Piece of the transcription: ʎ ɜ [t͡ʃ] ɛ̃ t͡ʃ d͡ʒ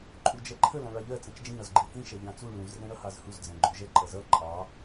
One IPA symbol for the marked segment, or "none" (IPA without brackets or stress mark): t͡s